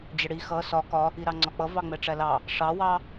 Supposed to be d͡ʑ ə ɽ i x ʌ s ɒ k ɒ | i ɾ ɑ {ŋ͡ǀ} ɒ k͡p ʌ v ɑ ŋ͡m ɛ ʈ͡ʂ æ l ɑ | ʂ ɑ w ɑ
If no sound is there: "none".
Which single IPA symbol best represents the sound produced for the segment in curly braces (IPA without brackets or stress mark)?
ŋ͡ǀ